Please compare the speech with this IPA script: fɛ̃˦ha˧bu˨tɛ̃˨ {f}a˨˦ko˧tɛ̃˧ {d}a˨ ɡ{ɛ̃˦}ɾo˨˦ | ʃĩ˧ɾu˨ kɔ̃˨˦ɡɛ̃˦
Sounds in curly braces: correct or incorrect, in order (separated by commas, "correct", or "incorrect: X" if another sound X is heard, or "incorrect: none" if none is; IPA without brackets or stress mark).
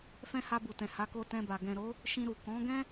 incorrect: h, incorrect: b, incorrect: ɛ̃˨